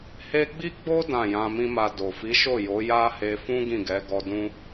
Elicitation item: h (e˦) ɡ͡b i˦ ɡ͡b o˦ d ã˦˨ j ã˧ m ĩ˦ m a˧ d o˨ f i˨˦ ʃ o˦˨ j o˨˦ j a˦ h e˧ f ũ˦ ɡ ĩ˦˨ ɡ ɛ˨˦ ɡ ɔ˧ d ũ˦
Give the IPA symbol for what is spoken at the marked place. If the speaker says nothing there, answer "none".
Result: e˦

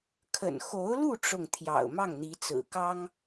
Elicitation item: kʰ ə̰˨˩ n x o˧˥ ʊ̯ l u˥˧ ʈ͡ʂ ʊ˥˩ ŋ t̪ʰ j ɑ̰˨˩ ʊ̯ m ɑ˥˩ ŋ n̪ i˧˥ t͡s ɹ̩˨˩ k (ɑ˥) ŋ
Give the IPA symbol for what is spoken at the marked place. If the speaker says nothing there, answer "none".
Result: ɑ˥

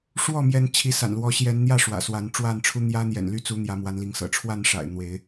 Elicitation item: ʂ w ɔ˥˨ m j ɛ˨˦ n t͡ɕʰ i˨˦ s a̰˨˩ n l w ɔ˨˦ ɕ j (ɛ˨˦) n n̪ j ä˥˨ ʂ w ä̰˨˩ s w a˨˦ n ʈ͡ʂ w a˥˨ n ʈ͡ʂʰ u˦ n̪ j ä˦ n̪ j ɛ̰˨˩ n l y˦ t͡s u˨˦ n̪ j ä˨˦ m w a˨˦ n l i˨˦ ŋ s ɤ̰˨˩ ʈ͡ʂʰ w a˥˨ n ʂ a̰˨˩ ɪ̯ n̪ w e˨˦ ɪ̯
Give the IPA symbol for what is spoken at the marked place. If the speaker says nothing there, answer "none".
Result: ɛ˨˦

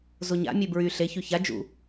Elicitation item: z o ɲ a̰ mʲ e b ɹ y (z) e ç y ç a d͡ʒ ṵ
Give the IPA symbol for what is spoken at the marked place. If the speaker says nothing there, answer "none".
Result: ɬ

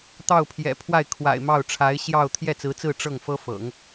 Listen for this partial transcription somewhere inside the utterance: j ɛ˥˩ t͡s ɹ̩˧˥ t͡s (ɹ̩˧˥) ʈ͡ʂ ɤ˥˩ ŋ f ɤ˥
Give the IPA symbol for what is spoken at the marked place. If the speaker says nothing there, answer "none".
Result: ɹ̩˥˧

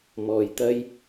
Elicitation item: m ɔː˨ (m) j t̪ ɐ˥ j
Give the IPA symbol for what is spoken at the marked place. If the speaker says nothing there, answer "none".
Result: none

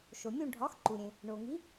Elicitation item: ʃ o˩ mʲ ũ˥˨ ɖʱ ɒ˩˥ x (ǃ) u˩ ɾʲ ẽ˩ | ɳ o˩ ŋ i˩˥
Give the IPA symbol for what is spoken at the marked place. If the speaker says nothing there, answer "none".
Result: ǃ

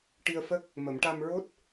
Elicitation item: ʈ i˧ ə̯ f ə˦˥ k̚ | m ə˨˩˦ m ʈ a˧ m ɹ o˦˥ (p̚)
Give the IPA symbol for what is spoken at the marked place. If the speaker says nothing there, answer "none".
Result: t̚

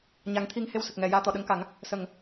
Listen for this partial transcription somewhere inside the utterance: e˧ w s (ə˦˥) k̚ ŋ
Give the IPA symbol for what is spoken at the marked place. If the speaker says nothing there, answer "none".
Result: ə˨˩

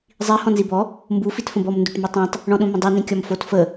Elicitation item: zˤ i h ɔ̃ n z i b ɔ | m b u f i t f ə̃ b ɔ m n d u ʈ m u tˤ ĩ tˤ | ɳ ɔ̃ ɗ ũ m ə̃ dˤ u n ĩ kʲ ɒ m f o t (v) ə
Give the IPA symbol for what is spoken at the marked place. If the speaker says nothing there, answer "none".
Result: f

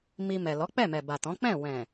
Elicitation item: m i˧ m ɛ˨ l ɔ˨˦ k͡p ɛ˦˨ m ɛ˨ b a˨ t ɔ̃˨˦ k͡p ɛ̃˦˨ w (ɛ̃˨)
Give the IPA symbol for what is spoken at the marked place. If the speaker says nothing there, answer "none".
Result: ɛ̃˨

